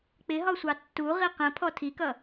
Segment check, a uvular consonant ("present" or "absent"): present